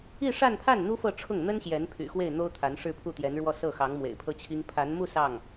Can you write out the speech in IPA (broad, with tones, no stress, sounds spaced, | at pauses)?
i˥˧ ʂ a˥˧ n pʰ a˥˩ n n̪ u˥ f ɤ˥˧ ʈ͡ʂʰ ʊ˥˩ ŋ n̪ ə˥ n ɕ j ɛ˧˥ n pʰ y̰˨˩ x w e˥˩ ɪ̯ n̪ o˥ ʊ̯ t̪ʰ a˧˥ n ʂ ɻ̩˥˧ pʰ u˥˩ t̪ j ɛ˧˥ n ɻ w ɔ˥˧ s ɤ˥˩ x ɑ˧˥ ŋ m w ḛ˨˩ ɪ̯ pʰ ɤ˥ t͡ɕʰ i˥ ŋ pʰ a˧˥ n m u˥˧ s ɑ˥˩ ŋ